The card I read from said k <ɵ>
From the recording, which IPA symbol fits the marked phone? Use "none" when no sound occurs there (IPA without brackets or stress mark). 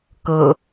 ɤ